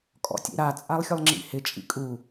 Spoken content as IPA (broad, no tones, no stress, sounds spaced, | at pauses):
kʼ ɔ̰ tʲ ḛ ɾ a t͡sʼ a lˠ xʲ ʊ lˠ ŋ͡ǁ ḭ h ɪ t͡ʃʼ ḭ kʼ u